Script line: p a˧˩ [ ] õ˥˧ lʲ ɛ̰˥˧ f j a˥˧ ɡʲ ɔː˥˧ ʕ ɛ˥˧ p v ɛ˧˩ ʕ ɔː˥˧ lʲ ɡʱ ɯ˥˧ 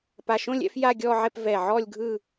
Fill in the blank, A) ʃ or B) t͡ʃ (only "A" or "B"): A